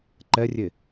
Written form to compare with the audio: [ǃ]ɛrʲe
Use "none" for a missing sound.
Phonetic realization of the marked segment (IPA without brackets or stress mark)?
ǃ